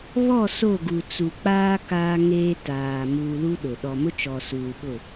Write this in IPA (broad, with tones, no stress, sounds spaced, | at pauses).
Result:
β ɔ˦˨ s o˦˨ ɡ u˨ t͡s u˨ k͡p aː˦ k aː˦ ŋ eː˦ t aː˨ m uː˨ l u˦ ɗ ʊ˨ ɗ ɔ˨ m ʊ˦ t͡ʃ ɔ˨ s uː˨ ɓ ʊ˦˨